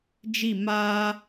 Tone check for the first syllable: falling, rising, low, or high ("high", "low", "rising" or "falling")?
falling